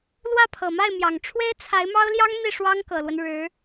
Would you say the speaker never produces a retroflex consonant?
no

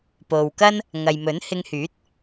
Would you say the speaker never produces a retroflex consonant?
yes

